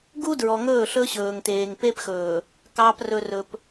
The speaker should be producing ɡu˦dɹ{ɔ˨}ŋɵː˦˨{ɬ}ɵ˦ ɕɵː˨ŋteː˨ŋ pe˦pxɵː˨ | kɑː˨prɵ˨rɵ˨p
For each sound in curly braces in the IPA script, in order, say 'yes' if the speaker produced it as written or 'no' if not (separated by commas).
yes, yes